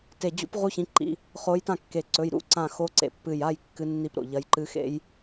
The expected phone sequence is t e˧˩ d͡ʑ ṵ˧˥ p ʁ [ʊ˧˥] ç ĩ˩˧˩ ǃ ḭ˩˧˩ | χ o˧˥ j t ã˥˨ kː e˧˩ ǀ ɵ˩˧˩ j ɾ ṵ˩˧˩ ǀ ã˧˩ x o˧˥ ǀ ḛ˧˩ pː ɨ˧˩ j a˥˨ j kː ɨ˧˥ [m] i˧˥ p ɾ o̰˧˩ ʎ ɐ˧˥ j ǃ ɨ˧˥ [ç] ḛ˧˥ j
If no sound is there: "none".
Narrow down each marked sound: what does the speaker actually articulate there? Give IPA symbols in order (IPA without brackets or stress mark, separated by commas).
u˧˥, nː, x